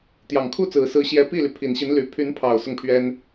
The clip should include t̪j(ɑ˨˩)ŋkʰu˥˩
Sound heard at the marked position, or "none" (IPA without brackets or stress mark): ɑ˨˩